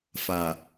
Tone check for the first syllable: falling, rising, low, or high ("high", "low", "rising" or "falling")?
low